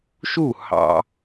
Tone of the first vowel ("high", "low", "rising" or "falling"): falling